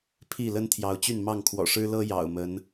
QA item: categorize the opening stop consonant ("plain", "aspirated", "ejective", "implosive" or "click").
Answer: aspirated